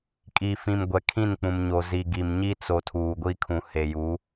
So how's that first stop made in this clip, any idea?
ejective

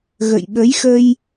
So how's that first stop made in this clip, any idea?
implosive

